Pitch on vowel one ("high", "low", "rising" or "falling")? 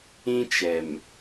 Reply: high